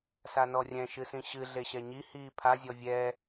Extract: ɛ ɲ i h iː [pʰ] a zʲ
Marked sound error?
no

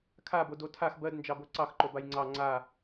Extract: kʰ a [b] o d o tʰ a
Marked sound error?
no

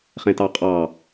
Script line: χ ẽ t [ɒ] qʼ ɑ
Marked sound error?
yes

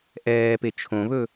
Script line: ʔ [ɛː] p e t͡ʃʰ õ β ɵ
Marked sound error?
no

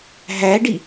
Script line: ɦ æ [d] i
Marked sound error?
yes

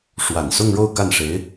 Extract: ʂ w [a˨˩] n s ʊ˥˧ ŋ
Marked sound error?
no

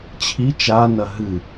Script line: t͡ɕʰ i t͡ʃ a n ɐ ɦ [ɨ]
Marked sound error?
no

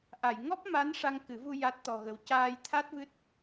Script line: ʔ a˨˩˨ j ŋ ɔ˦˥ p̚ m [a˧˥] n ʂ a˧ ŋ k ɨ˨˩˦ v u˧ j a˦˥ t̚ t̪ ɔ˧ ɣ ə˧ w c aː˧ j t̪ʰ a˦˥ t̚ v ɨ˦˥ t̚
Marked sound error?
no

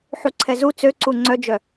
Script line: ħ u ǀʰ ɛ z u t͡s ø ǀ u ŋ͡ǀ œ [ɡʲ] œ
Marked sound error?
yes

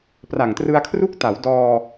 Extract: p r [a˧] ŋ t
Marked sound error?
yes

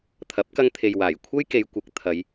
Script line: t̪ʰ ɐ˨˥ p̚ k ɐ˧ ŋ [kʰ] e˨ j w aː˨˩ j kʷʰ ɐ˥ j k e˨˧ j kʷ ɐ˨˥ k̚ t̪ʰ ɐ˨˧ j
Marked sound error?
yes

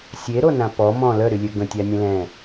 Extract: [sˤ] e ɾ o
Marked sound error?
yes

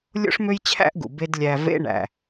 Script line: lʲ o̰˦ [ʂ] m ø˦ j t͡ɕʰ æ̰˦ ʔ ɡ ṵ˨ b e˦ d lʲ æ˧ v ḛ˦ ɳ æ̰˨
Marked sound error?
no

